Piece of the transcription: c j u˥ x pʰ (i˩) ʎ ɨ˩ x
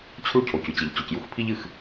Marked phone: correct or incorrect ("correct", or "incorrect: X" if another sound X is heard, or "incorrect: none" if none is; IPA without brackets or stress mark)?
incorrect: i˥